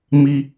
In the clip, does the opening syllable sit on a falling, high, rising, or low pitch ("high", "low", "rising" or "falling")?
low